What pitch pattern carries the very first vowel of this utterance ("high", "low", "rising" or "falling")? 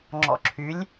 low